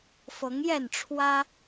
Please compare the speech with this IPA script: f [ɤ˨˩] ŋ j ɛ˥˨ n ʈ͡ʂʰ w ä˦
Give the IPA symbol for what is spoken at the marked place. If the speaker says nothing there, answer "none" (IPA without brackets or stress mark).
ɤ˨˦